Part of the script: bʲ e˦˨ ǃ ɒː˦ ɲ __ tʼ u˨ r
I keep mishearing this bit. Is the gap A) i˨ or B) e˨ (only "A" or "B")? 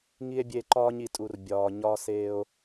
A